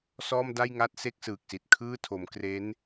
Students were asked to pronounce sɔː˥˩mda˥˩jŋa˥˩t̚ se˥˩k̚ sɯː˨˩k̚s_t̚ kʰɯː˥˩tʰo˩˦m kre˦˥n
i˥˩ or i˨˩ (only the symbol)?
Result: i˨˩